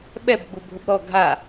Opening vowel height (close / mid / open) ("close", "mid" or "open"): mid